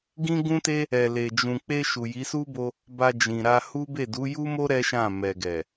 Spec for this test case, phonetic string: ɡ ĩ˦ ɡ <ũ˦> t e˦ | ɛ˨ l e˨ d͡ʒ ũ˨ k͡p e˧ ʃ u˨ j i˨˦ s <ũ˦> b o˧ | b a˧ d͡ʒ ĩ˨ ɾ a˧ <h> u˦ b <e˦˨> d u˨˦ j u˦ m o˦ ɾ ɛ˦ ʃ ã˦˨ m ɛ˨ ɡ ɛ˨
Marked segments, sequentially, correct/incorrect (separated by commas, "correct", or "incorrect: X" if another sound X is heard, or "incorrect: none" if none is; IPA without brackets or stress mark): correct, incorrect: u˦, correct, correct